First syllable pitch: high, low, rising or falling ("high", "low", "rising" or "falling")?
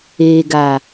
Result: low